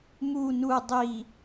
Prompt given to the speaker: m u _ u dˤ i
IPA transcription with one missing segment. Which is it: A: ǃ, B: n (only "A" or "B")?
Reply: B